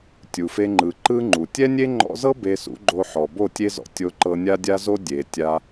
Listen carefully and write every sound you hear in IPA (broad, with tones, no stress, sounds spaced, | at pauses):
tʲ u˨ f e˧ ŋ͡ǃ ɯ˨ ǃ ɯ˦ ŋ͡ǃ u˨ tʲ ɛ˦ nʲ e˦ ŋ͡ǃ ɔ̰˧ z ɤ˦ b e˧ s ṵ˨˦ ɡ͡ǃ o˧ ħ ɔ˨ b o˦˨ tʲ e˦ z ɔ̰˧ tʲ o˧ ǃ ɤ˧ nʲ a˦ dʲ a˦ z o˦ dʲ e˨ tʲ a˧